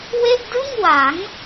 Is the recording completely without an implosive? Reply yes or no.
yes